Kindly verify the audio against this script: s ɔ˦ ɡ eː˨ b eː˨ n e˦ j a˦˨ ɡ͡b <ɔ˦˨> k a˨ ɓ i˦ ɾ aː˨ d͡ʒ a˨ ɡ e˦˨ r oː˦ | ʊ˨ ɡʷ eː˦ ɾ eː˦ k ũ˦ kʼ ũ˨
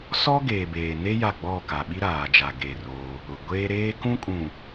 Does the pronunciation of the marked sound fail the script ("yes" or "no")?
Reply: no